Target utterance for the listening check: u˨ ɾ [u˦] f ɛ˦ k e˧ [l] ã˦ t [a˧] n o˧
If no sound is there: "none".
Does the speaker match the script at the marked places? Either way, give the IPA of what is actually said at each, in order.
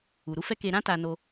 u˨˦, ɾ, a˧

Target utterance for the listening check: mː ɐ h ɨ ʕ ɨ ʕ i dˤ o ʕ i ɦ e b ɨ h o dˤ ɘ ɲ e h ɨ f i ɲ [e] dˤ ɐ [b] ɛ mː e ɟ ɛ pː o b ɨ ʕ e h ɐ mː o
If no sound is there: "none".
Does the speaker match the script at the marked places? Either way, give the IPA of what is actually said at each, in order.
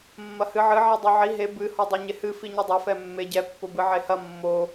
ɘ, f

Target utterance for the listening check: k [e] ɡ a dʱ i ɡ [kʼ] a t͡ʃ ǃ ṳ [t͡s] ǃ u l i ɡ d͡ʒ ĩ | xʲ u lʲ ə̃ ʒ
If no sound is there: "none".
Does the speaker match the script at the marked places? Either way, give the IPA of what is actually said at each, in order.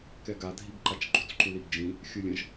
ɛ, ǃ, t͡s

